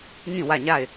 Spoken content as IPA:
ŋ ĩ˦˨ w ä˦˨ ɲ a˦˨ ɪ̯

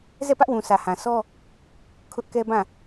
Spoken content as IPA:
z ɛ˦˨ p ä˦ ʔ w ũ˨ sʰ ä˨ h ã˨ sʰ ɔ˦ | kʰ ʊ˦ ʔ k ɛ˦ b ã˦˨

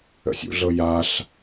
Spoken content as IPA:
ə̰ sʲ ṵ ɮ ɤ j a ɬ

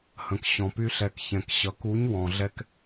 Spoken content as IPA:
h ə̃˨ k ɕ ɔ̃˨ p y˧ ɬ ɛ˨ k ç ɛ̃˨ k ɕ ʌ˨ k u˨˦ ɲ w ɔ̃˨ ɮ ɛ˧ k

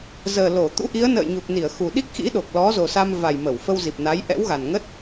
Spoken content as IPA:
z əː˨˩ l o˧˩ t̪ ṵ˧˥ ʔ i˨˦ ə̯ n ə̰ː˧˨ j ɲ u˨˩ k̚ n i˧˩ ə̯ x u˨˩ ɗ i˦˥ k̚ x ḭ˧˥ ɗ o˨˩ k̚ l ɔ˨˦ z o˨˩ s a˧ m v a˨˩ j m ə˧˩ w f ə˧ w z i˨˩ p̚ n a˨˦ j ʔ ɛ̰˧˥ w ɣ a˨˩ n ŋ ə˦˥ t̚

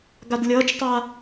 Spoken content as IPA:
ɡ a d lʲ ʌː t͡ʃ tˤ a

